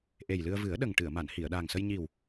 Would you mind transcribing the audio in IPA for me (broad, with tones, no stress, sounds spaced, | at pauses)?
ʔ e˨˩ j l ɨ˧ ə̯ v ɨ˨˩˦ ə̯ ɗ ə˨˩ ŋ ʈ ɨ˨˩˨ ə̯ m a˨˩˨ n h i˨˩˨ ə̯ ɗ aː˨˩ ŋ s ə˧ j ɲ i˨˩ w